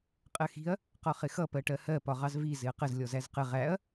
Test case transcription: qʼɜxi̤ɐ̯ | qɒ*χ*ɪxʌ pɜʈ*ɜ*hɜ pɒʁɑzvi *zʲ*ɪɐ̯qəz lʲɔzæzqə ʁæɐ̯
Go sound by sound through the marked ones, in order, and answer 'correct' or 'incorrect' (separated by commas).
correct, correct, incorrect